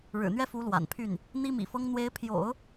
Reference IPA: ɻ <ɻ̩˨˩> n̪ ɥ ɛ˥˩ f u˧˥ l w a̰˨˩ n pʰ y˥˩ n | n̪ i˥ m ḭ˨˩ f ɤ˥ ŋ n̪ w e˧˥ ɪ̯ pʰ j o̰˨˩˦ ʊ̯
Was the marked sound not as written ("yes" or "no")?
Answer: no